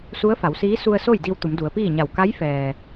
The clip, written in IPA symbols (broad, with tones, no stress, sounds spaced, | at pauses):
s u˧˥ ə̯ f a˩˧ w s iː˧˥ s u˧ ə̯ s o˥˨ j d i˧ w t̪ u˩˧ m d u˩˧ ə̯ p iː˥˨ ɲ a˧˩ w k a˧˥ j f ɛː˩